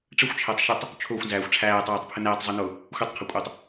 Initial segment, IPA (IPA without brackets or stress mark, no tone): ʈ͡ʂ